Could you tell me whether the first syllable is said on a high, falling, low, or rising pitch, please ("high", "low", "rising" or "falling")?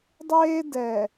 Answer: high